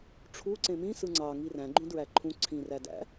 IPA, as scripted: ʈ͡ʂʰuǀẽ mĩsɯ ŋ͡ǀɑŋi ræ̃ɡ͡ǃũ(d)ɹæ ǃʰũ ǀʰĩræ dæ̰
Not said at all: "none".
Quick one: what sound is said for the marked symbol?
d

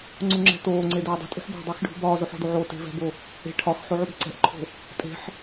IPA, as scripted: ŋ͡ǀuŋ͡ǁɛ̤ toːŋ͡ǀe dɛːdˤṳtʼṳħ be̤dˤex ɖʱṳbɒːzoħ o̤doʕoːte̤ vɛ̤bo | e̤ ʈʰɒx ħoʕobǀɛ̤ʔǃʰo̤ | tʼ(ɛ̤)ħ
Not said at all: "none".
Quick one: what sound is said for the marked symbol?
e̤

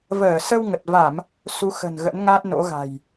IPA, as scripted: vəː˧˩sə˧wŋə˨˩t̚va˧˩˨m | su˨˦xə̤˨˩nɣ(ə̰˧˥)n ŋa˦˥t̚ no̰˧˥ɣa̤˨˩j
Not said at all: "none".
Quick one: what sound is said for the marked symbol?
ə̰˧˥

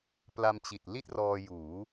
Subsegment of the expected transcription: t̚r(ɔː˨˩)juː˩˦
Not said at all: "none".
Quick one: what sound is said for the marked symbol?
ɔː˧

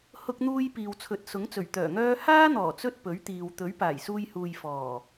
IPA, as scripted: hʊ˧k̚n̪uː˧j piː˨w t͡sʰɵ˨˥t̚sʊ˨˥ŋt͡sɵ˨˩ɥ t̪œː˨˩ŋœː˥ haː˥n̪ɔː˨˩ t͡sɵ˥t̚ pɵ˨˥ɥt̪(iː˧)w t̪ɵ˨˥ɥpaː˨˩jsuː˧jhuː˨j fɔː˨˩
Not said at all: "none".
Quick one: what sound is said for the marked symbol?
iː˨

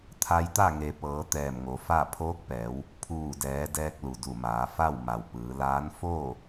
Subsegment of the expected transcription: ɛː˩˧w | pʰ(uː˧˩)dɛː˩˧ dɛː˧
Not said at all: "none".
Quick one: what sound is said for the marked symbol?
uː˧˩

